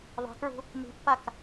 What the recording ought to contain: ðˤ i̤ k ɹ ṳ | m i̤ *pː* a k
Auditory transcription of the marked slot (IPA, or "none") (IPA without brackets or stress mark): pː